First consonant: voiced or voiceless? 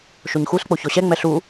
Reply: voiceless